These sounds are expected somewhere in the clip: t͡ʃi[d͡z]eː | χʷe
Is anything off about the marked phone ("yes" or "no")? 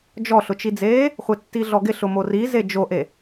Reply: no